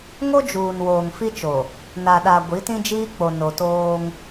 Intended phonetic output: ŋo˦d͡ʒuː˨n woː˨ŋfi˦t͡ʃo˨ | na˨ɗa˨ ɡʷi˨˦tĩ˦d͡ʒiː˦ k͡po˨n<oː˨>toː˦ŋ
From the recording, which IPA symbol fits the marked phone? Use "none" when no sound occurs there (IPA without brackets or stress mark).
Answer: o˨